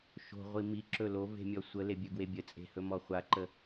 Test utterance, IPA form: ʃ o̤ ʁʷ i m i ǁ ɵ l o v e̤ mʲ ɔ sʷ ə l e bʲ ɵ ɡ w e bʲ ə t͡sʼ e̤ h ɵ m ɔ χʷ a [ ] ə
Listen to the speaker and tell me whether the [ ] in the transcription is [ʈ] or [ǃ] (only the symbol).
ǃ